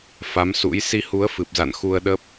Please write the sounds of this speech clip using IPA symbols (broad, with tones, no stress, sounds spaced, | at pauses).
f a˨˦ m s ṵ˧˥ j s i˧ h u˨˦ ə̯ f ɨ˨˩ p̚ z a̰˧˨ n x u˧ ə̯ ɗ ə˦˥ p̚